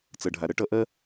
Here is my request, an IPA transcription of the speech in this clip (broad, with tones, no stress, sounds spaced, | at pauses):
t͡s ʌ˨ ɖʱ a˨ ɾ ʌ˧˥ ʈ ʌ˧˥ ʔ ɜ˥